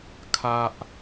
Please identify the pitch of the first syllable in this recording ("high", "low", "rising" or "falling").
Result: high